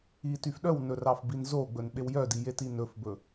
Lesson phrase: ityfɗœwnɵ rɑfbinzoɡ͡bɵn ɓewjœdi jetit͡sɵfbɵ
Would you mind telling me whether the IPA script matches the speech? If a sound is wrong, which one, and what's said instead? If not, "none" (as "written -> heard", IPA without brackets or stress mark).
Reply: t͡s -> n